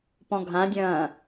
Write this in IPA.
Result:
p ɔ̃ ɡʱ ã dʲ ɐ̃ː

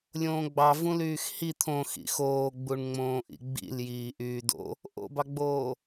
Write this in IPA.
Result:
lʲ õː ɡ͡b ɑ v ũ l yː x h i t̪ʰ õ x ḭ x oː ɡ͡b u ɳ ŋ͡m õː ʔ ḭ ɡ͡b ḭ l j iː ʔ yː d o̰ | ʔ o̰ b ɑ ɡ͡b oː

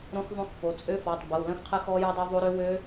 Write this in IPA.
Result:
ɾ õ˦˥ x ðˤ õ˦˥ x p o˩˧˩ t͡sʼ ø˦˥ f ɔ˩˧˩ tˤ b ə˩˧˩ w l ə̃˦˥ x qʰ ə˦˥ x ɔ˦˥ j œ˦˥ dˤ œ˦˥ ðˤ o˦˥ ɾ ø˦˥ w ø˦˥

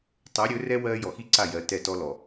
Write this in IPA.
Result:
tˤ o˨˦ ɾʲ ɵ˨˦ r ɛ˦ w ɜː˦ j ɔ˨ x i˦ ǀ a˦˨ j ɜ˨˦ t ɛ˦˨ t ɔ˦ l ɔ˨

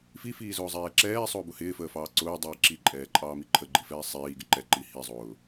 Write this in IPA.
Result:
f i f iː z ʊː zˤ ɛː ǁ ɛː sˤ ʊː b ʊ h ɪː f əː f ɑː ǀ ʊː dˤ iː ǁ i ǃʼ ɛː ǃʼ ɑː m i ǃʰ ə ɡ͡ǃ i f ɛː sˤ iː ɡ ɪ ǃ ɛ ǃ i h i zˤ ʊː

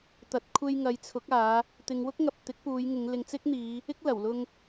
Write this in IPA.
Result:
t̪ ɐ˨ t̚ kʷʰ e˧ j ŋ ɐ˨˧ j t͡sʰ ʊ˨˥ k̚ aː˨˧ | t̪ ɪ˨˧ ŋ w ʊ˥ k̚ ŋ ɐ˨ p̚ t̪ ɪ˨˥ k̚ p uː˨˧ j ŋ ɪ˨˧ ŋ l ɪ˨ ŋ t͡s ɪ˥ k̚ n̪ iː˨˧ | ɪ˥ k̚ l ɐ˨˩ w l ʊ˧ ŋ

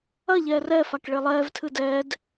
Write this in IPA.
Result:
ɐ ʎ ɛː r ɛ f a k ɭ e lˠ ɛː v tʰ ɨ d ɛː d

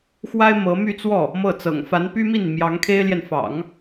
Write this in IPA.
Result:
x w a˥ ɪ̯ m ɤ˧˥ m y˥˧ t͡s w ɔ˥˩ | m ɤ˥˩ t͡s ɤ̰˨˩ ŋ f a˧˥ n p y˥ m i˥˩ n m j ɑ˧˥ ŋ kʰ e˥ ɪ̯ l j ɛ˨ n f ɑ̰˨˩˦ ŋ

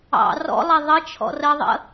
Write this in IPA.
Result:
ɑ̰ r ɔ̰ lˠ ɛ ðˤ ə t͡ʃʰ ɔ̰ r ə ðˤ ə̰

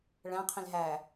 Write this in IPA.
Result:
ɭ æ̃ qʰ ĩ l ɦ æ

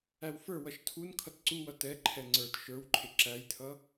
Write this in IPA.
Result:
æ w f ə˞ w ʌ ʃ tʰ u n kʰ ʌ t ǀ u w ʌ t ɛ ǃʰ ɛ ŋ͡ǀ ə˞ t ʃ ə˞ w ǃʰ ɪ ǁ æ j tʰ ʌ

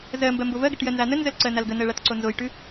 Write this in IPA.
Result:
z ɜ m b ɜ m b o v ɜ ɡ ə ʈ j ɜ n z a n ə n z ə l ǀ ɜ n a l ɡ ə n ɜ ɭ a t ǀ o n z o j ʈ ʉ

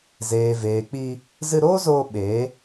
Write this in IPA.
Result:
z eː˨ v eː˨ k͡p i˧ | z ɨ˧ ɾ oː˦ z oː˧ ɓ eː˨˦

